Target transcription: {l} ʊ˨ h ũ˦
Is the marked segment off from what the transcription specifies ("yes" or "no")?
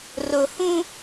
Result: yes